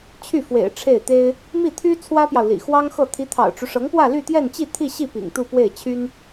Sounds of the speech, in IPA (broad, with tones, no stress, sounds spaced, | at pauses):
t͡ɕʰ y˥˩ f w ḛ˨˩ ɪ̯ ʈ͡ʂʰ e˥˩ ɪ̯ t̪ e˥ ɪ̯ | m i˥˩ t̪ʰ y˥ t͡sʰ w ä˥ p j ɑ˨ ʊ̯ l ḭ˨˩ x w ɑ˥ ŋ x ɤ˥˩ t̪ʰ i˧˥ t̪ʰ ɑ̰˨˩ ʊ̯ ʈ͡ʂ u˦ ʂ ɤ˧˥ ŋ p w ä˥˧ l y˥˧ t̪ j ɛ˥˧ n t͡ɕ i˥˧ t̪ʰ i˥˧ ɕ i˥˩ p ḭ˨˩ ŋ t̪ u˥˧ p w e˥˩ ɪ̯ t͡ɕʰ y˥ n